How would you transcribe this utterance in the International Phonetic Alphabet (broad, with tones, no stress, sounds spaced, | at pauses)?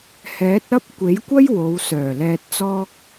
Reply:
h ɛː˨˥ t̚ ɐ˥ p̚ kʷ e˨˥ j kʷ ɐ˥ j w o˨˧ w s œː˨˩ l ɛː˧ t̚ t͡s ɔː˥ k̚